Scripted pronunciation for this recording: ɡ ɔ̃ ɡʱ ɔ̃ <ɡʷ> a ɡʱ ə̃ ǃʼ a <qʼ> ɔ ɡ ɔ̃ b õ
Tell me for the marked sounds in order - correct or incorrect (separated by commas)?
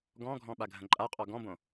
incorrect, correct